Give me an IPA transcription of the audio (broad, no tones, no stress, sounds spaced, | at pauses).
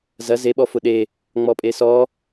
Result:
z ɐ z e ɓ ɔ f ʊ ɗ e | ŋ͡m ɔ pʼ e s ɔ